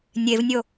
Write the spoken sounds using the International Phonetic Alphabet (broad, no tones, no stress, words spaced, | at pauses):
nʲevnʲo